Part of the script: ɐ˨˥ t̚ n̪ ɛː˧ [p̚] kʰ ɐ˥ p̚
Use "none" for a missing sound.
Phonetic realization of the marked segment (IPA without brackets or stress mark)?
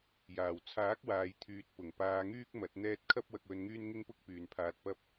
t̚